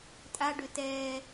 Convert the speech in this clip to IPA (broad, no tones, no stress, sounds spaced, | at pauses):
tʼ a ɖ ø t ɛː